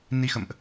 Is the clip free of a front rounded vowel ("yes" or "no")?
yes